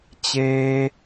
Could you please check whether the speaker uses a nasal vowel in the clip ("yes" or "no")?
no